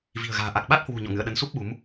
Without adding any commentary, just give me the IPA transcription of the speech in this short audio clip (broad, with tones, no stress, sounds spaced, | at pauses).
v i̤˨˩ ə̯ ɣ a̤ː˨˩ ʔ a˨˩ k̚ ɓ a˦˥ t̚ h w ṳ˨˩ ɲ ɔ̰˧˨ ŋ ɨ̰˧˨ ə̯ ɗ ə˨˦ n s u˦˥ p̚ ɓ u˨˦ m